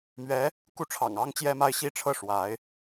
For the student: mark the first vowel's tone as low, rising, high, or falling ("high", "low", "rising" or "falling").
rising